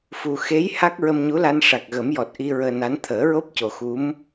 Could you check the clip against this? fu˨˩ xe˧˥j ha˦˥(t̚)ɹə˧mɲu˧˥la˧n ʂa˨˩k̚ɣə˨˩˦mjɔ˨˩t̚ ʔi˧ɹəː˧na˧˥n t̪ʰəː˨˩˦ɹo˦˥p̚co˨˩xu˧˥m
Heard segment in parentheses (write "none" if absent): k̚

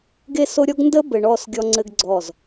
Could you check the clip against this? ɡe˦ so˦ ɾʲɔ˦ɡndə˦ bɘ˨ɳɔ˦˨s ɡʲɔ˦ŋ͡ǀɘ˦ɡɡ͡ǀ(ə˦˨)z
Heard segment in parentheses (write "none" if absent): ɔ˦˨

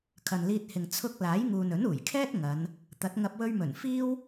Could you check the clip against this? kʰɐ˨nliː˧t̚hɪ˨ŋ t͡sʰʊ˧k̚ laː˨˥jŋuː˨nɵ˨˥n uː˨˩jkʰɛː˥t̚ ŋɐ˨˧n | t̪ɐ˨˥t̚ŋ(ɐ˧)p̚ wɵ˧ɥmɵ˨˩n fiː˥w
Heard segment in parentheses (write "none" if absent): ɐ˧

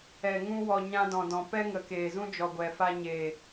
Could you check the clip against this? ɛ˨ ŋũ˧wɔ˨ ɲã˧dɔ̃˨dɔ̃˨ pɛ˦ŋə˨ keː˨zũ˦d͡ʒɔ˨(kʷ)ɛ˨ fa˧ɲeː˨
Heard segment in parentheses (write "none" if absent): ɡʷ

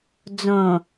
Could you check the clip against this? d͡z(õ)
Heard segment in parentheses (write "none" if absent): õ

